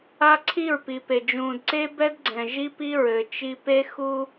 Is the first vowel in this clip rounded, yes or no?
no